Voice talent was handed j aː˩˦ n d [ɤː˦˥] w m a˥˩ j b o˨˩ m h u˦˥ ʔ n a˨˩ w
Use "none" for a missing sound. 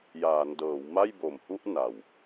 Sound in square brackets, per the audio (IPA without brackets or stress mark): ɤː˩˦